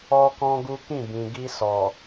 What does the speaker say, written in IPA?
ɔ˦ k ɔ̃˦ ɡ u˦ k ĩ˦˨ b ĩ˨ ɡ i˧ s ɔ˨

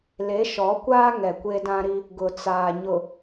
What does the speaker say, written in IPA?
l e˨˦ ʃ ɔ˨˦ kʷ aː˦ ŋ ɛ˨ kʷ e˦ d ã˦ ɾ i˦ | ɡ ʊ˨ t͡s aː˨ ɲ ʊ˨

